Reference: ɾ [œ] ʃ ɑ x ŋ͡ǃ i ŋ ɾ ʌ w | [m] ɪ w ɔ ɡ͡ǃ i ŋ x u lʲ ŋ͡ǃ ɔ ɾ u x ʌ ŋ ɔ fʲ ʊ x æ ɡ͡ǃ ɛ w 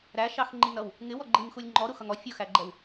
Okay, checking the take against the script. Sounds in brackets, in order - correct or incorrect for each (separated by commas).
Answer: incorrect, incorrect